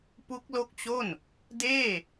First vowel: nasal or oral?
oral